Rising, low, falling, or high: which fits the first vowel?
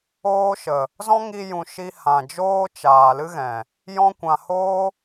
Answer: high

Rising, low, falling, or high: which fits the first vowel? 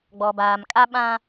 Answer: low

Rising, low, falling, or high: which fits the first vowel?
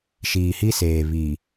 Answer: low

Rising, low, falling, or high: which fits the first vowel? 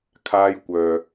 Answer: high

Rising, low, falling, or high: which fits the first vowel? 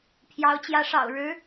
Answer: rising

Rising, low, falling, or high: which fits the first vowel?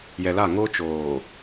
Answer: low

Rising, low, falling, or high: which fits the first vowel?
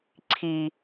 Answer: low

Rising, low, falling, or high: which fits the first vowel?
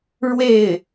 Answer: falling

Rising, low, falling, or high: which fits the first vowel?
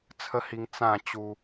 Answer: high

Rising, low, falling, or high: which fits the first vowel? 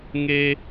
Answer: high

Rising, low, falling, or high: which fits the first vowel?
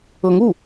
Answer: rising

